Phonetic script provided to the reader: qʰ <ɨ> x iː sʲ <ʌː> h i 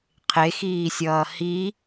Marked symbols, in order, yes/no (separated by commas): no, yes